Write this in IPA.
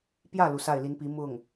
p j ä˥˩ l u˩ s a˥˩ ɪ̯ l i˧˥ n p i˧˥ m ʊ˥˩ ŋ

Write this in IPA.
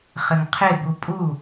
χ ɘ ŋ qʰ ɪ b u pʼ u

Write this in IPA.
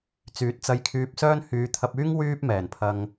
t͡s yː˨˥ t̚ t͡s ɐ˧ j kʰ yː˧ p̚ s œː˥ n h yː˨˧ t̪ʰ ɐ˧ p̚ yː˥ ŋ w yː˥ p̚ m ɛː˨˩ n pʰ ɐ˧ ŋ

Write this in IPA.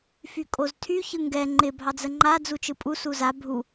f y kʼ o z tʰ y ç ɯ ŋ ɡ ɛ ŋ͡ǃ ɪ bʱ ɑ d͡z ə ŋ͡ǃ a d͡z u t͡ʃ ɯ pʼ u s u z a bʱ u

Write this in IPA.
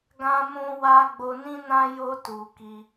ɡ ã˧ m ũ˧ w a˧ ɡ͡b o˧ n ĩ˦ n ã˦ j o˧ t u˨ k i˧

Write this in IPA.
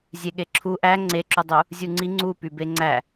zʲ e ɠ e ǁʰ u ʔ æ ŋ͡ǀ e ǁ u dˤ u | zʲ u ŋ͡ǀ i ŋ͡ǀ u p y b e ŋ͡ǀ æ

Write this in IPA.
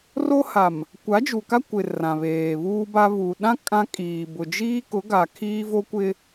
r o˦ h a˨ m | kʷ a˨˦ d͡ʒ u˨ k a˦ kʷ ɪ˨ r ã˨ β eː˨ β uː˦ b a˦ β u˨ ɗ ã˦ kʼ ã˦ kʼ iː˨ b ʊ˨ d͡ʒ iː˦ k ʊ˨˦ ɡ a˨ kʰ iː˦ v o˦ kʷ ɪ˦

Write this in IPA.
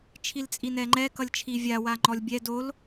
t͡ʃʰ i l t͡sʼ i n ɛ ŋ͡ǃ ɛ k ʌ lʲ t͡ʃʰ i vʲ a w a ŋ͡ǃ ɔ lʲ bʲ ɛ d o l

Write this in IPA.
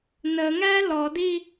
n ə ŋ æ l ɔ d i

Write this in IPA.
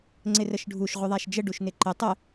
ŋ͡ǀ ɪ r ə ʃ ɖʱ u ʃ ʁʷ ɪ ðˤ a ʃ d͡ʒ ə ɖ u ʃ n ɪ ǃ ɪ tˤ ə

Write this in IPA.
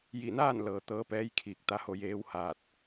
j i˧˩ n aː˥˨ n l ɤː˩ t̪ ɤː˧˥ p ɛː˧˥ j kʰ iː˧˩ k̚ t̪ a˧ h o˧ j eː˧˥ w h aː˧˩ t̚

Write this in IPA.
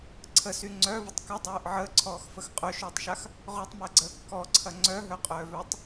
ǀʰ ə s y ŋ͡ǀ œ v ə tˤ k ə dˤ œː ʔ ʕ əː ǀʰ ɔː x f ə x qʼ œ ʃ œː tˤ ʃ a x | ʁ o tˤ m əː ɡ͡ǀ əː kː ɔ ǀʰ ɐ ŋ͡ǀ œ ɦ œ qʼ œː v œ tˤ

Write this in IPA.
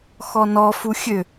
x ɔ n ɔ f u xʲ ø

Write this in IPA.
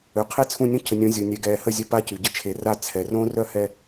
ø˨ qʰ e˦ t͡sʰ ũ˦˨ nʲ õ˦ cʰ ə˨ nʲ õ˨˦ zʲ o˨ nʲ ɛ˨ ɡ ɛː˨ h ə˦˨ zʲ œ˦ p a˦ c y˨ ɟ ə˦ t͡ʃʰ e˨ r a˦˨ t͡sʰ ɛ˨ r õ˦ r œ˦ h ɛ˨

